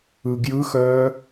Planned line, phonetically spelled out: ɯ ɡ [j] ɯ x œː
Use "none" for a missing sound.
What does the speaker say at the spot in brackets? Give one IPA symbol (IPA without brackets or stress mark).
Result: j